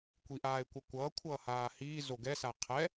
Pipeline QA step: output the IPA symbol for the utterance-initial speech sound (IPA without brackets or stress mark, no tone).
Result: kʷ